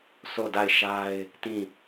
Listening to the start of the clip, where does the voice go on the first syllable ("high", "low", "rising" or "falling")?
falling